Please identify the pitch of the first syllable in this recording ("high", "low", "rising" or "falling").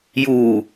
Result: low